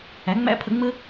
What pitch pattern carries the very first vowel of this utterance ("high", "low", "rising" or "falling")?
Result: rising